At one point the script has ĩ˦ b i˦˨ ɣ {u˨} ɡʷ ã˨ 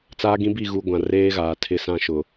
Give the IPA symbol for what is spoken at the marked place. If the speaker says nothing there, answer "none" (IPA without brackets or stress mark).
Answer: u˨